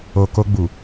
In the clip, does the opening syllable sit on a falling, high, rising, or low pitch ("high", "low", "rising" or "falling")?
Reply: low